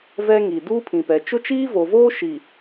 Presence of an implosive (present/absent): absent